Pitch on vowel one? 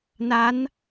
rising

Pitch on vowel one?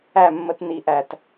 falling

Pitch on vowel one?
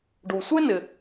low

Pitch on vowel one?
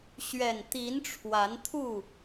low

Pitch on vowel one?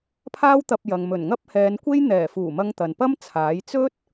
high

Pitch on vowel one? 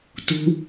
high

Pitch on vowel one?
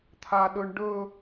high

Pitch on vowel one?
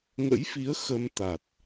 rising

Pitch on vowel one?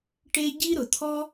high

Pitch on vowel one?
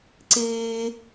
high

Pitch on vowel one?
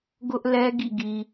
high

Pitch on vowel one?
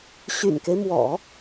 low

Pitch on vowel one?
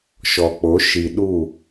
low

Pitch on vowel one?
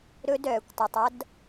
high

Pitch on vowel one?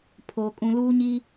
low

